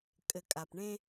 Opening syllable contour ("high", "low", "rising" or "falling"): low